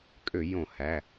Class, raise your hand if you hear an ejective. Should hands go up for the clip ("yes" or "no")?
yes